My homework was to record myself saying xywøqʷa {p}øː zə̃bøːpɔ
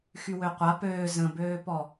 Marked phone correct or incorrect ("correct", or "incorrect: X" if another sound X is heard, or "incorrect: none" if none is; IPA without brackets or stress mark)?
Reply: correct